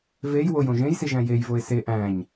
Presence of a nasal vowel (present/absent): present